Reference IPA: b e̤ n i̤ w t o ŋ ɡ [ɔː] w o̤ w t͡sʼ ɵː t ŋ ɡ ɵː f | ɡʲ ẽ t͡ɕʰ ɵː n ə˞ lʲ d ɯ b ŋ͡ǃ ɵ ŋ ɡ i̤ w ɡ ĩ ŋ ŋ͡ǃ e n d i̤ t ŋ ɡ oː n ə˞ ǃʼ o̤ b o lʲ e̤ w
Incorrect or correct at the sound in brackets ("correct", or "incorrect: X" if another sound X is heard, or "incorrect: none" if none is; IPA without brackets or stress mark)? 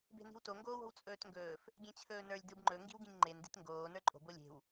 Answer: incorrect: oː